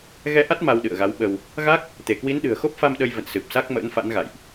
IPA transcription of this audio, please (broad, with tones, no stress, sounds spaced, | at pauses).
ɣ ɛ˧ ʔ a˦˥ t̚ m a˧ w ɗ ɨ̰˧˨ ə̯ ɣ a˨˦ w ɓ ə˧ w | ɣ a˦˥ k̚ | t̪ e˧˩ k w i˨˦ n ɗ ɨ̤˨˩ ə̯ x o˦˥ p̚ f a˧ m ɗ ə˧ j v ə̰˧˨ n s ɨ˨˩ p̚ s a˦˥ k̚ m ə̰ː˧˥ n f a̰˧˥ n ɣ a̰˧˨ j ʔ